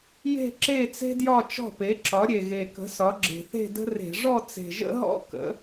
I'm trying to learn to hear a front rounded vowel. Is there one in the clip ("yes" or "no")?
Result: no